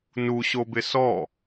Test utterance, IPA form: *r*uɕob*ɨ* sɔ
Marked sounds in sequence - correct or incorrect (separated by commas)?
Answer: incorrect, incorrect